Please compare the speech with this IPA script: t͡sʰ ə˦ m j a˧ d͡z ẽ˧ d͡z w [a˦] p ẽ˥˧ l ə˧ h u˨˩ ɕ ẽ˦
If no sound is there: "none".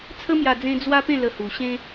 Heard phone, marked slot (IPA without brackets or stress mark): a˦